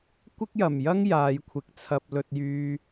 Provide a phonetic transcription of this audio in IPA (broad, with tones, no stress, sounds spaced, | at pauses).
kʷ ɪ˥ k̚ j ɐ˨˩ m j ɐ˥ ŋ j aː˨˧ j kʷʰ ɪ˨ k̚ t͡sʰ ɐ˧ p̚ l ɵ˨ t̚ j yː˨